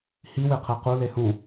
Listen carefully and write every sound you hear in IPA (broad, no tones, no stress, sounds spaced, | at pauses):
h i w e qʰ ɛ q u l e h ũ